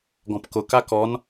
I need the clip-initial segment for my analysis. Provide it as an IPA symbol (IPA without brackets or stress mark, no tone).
ɡ